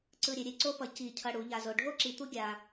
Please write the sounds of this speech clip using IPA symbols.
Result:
ǀ ɯ˧ ɾʲ e˩˧ ɾʲ e˧ ǀ o˥ p ʌ˧ c i˧˩ cʰ ʌ˧ ɽ u˩˧ ʎ a˧ z o˧ ɖʱ o˥˧ ǁ i˧ t̪ u˥ ɡʲ a˧

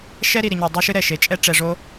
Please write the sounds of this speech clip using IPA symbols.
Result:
ʃ ɛ˦ ɾ i˨ ɾ i˨ ɲ ɔ˨ dˤ ɛ˦ ʃ ɨ˦ ɾ ɛ˨ ʃ e˨ t͡ʃʼ ɛ˦ ʈ͡ʂ ɛ˨ ʐ o˦

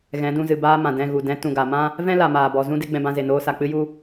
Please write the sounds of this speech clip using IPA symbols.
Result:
ɣ ɛ̃˨˦ d ũ˧ z ɨ˨ b aː˧ m ã˨ d ɛ̃˦˨ ɣ u˨ d ɛ̃˨˦ t ũ˨ ɡ a˨ m ã˦ | v ɛ̃˦ l a˨ m aː˨ b ɔ˨ z ũ˦ d e˦ ɡ͡b ɛ̃˧ b ã˧ z e˨ n oː˧ s a˨ k͡p ɨ˦ j u˦

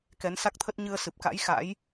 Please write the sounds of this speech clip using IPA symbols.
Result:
k ɛ˨˦ n s a˦˥ k̚ t̪ʰ ə˦˥ t̚ ɲ ɨ˧ ə̯ s ɨ˨˩ p̚ k a̰˧˥ j x a̰˧˥ j

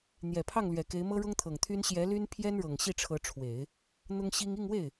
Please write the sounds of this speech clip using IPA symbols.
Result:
n̪ j ɛ˨˩ pʰ ɑ˥˩ ŋ l ɥ ɛ˨˩ k e˧˥ ɪ̯ m ɤ˥ ɻ ʊ˥ ŋ t̪ʰ ɤ˨˩ ŋ t̪ʰ y˥ n ɕ j ɛ˧˥ l y˥ n pʰ j ɛ˥ n ɻ ɤ˨˩ ŋ ɕ i˥˩ ʈ͡ʂʰ ɤ˧˥ ʈ͡ʂʰ w e˨˩˦ ɪ̯ | n̪ ʊ˥ ŋ ɕ i˥ ŋ i˥˧ ŋ w e˥˩ ɪ̯

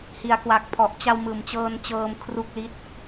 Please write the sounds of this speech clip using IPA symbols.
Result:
h i˩˦ a̯ k w a˨˩ k̚ pʰ ɔ˨˩ ʔ t͡ɕ a˧ w m ɯː˩˦ m t͡ɕ ɤː˧ n t͡ɕ ɤː˧ m kʰ r u˥˩ k̚ l i˥˩ t̚

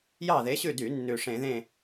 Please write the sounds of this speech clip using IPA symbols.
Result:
j ɑ˦˨ ð e˨˦ ɕ ʉ˦˨ d y˧˩˧ nː ʉ˨˩ ʂ ẽ˧˩˧ ð ẽ˦˨

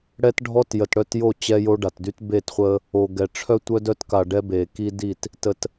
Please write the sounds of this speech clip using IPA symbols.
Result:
ɽ ɛ˦ t ɖʱ ɔ˦ t j ə˨ t ɽ œ˦˨ t j o˦˨ t͡ɕ ɛ˦ j o˦ ɖ a˨ t d y˦ t b e˦˨ t χʷ ə˦ | o˨ ɡ ɛ˨ ʈ͡ʂʰ œ˦ tʷ œ˦ d œ˦ t k a˨ ɖ ɛ˦ b e˨ k i˦ d i˦˨ t | t ə˨ t

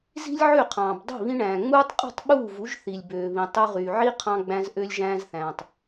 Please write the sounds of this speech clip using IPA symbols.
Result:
z i̤˦ lʲ ʕ ø˦˨ qʰ ɑ̃ː˨ b dˤ i̤˦˨ β ĩ˧ ɳ æ̃ː˨ ŋ͡m uː˦ tˤ qʼ ṳ˦˨ tˤ ɓ uː˦˨ v u˨˦ ʒ θ i˨ lʲ b øː˨ β ĩ˨ tˤ y˧ ʁ yː˨ ʕ i˦ qʰ ɑ̃˧ ɡ͡b æ̃˧ z ʔ ø˧ lʲ ʒ æ̃ː˧ z θ æ̃ː˨ tˤ

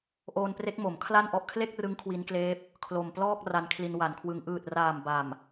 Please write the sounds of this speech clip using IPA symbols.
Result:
ʔ oː˧ n p r e˦˥ k̚ m o˩˦ m kʰ l a˥˩ n ʔ ɔ˦˥ ʔ kʰ l e˥˩ k̚ r ɯ˦˥ ŋ kʰ w i˦˥ n k l eː˦˥ p̚ | kʰ l o˨˩ m p l ɔː˥˩ k̚ r a˧ n kʰ l i˧ n w a˩˦ n kʰ w ɯ˧ ŋ ʔ ɯː˨˩ t̚ r aː˨˩ m b a˨˩ m

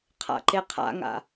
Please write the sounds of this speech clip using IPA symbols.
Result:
qʰ a̰ ǃ e qʰ a̰ ŋ a̰

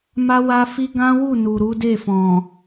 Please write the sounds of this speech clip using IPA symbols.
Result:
m a˦ w a˦ f i˦ ɡ ã˦ w u˦˨ n u˨ ɾ u˨˦ d e˦˨ f ɔ̃˨

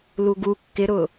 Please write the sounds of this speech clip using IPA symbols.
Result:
l u ɡ u kː ɪ ɾ ʊ

